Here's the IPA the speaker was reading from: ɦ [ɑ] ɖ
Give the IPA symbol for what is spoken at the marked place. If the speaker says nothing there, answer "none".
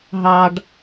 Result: ɑ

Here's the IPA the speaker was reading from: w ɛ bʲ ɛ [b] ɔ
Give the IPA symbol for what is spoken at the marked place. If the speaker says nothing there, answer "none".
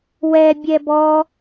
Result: b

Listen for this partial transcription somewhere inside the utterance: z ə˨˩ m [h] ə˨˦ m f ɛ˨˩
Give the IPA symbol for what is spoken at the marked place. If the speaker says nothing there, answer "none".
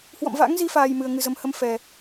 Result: h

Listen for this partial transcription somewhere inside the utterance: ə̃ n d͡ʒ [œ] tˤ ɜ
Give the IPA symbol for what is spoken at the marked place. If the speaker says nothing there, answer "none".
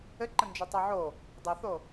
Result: œ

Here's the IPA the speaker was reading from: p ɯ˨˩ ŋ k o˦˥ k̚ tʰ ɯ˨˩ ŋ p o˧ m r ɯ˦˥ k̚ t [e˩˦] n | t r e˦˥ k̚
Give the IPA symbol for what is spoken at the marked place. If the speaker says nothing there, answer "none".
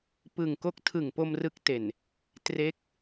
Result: e˨˩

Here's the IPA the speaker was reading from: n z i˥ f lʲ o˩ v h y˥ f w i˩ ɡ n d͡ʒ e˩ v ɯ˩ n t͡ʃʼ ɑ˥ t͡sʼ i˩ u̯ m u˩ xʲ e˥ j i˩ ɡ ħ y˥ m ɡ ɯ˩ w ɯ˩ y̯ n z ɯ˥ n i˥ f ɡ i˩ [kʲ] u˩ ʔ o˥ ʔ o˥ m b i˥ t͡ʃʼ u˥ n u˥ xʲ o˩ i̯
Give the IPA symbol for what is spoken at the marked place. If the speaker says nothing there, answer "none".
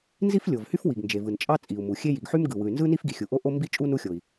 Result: xʲ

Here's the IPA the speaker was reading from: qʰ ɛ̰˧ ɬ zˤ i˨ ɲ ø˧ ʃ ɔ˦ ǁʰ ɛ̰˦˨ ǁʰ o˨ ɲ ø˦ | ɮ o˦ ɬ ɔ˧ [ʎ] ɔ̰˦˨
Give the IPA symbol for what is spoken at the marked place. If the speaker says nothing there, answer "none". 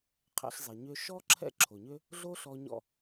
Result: ɲ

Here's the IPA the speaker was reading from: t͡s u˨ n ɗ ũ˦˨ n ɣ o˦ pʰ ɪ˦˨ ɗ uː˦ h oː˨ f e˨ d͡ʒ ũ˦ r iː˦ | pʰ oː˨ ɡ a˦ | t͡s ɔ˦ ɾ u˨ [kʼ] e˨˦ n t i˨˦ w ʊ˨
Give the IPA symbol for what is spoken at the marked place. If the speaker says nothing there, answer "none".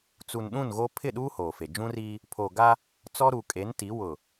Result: kʼ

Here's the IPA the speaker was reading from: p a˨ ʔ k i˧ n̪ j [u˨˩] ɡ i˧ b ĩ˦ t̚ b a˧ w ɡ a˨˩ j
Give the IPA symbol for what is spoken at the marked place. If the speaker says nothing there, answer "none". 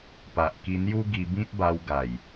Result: u˦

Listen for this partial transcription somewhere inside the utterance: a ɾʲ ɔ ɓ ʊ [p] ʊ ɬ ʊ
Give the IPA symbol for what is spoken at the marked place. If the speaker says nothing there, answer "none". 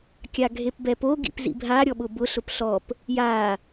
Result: b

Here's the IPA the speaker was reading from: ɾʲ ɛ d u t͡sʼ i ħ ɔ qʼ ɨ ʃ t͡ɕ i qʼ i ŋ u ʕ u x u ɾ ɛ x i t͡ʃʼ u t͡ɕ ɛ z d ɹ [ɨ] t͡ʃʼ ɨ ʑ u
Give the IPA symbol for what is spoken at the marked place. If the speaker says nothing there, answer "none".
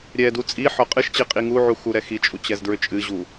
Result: ʏ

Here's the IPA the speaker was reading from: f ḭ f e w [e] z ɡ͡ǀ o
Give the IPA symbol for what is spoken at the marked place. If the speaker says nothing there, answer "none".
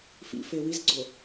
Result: i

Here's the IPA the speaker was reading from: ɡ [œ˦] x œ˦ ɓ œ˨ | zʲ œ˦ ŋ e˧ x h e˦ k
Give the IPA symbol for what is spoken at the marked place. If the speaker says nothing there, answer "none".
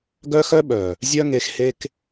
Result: œ˦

